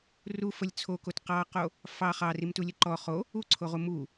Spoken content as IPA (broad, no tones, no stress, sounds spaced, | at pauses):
r u f ə lʲ t͡sʰ o k o t q ɑ q o | f ɑ χ ɑ r i m t u lʲ ə ǃ ɔ χ o | u ǀʰ o ʁ u m u